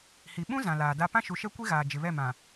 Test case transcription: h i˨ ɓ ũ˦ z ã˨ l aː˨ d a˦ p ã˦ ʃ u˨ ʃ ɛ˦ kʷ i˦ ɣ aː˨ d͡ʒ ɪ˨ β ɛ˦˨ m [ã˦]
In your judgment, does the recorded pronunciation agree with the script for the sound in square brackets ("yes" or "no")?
no